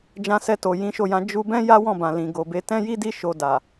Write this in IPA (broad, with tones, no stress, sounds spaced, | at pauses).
d͡ʒ ã˧ s ɛ˧ t o˨ j ĩ˨˦ ʃ o˦˨ j ã˧ d͡ʒ u˧ b ɛ̃˦ j a˦ w ɔ̃˦˨ b ã˨ l ĩ˨ ɡ o˨ b e˧ t ɛ̃˦ j i˦ d i˦ ʃ o˧ d a˨